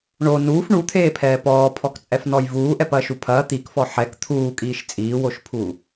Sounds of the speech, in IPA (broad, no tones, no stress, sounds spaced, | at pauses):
ɳ o n uː f ɳ u t̪ʰ eː pʰ ɛː p ɔː pʰ ɔ k t͡sʼ ɛ f n ɔ j v uː ʔ ɛ p ɐː ʃ u pʰ ɐː t̪ i k f ɔ ħ ɛ k t̪ʰ uː kʼ iː ʃ t͡sʼ iː w o ʃ pʰ u